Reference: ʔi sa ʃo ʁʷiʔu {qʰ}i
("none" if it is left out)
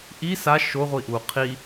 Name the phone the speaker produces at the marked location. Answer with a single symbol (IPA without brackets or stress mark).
qʰ